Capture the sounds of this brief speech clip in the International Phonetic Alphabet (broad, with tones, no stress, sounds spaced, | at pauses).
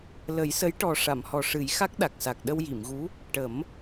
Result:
l ə˨˩˦ j s ə˧˥ j ʈ ɔ˨˩ ʂ a˨˩˨ m h ɔ˨˩ ʂ ɨ˨˩˦ j x a˦˥ k̚ ɗ a˨˩ k̚ s a˨˩ k̚ ɗ ə˧ w j i˨˩˨ m ɣ u˧˥ | ʈ ə˨˩˦ m